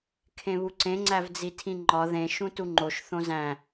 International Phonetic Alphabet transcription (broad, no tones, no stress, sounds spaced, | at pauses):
kʰ ẽ β u ǀ ẽ ŋ͡ǀ æ v d͡z i tʰ ĩ ŋ͡ǃ ɒ ð ẽ ʃ ũ t u ŋ͡ǃ o ʃ θ õ z æ̃